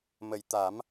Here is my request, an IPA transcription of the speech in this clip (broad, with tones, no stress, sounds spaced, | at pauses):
m ə˨˩ j t̪ a˨˩˦ m